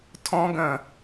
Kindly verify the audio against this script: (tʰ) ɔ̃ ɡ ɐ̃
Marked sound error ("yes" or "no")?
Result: no